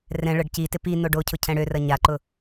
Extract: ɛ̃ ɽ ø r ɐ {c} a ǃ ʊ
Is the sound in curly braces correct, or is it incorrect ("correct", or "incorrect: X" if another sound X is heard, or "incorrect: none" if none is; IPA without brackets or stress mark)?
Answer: incorrect: ɲ